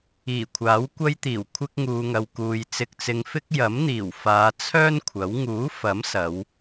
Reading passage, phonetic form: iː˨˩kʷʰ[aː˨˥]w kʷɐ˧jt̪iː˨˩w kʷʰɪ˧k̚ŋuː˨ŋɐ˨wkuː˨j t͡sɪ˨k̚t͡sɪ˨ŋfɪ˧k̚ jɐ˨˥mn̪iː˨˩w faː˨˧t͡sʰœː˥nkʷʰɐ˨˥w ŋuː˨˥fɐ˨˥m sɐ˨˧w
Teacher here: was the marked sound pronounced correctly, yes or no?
yes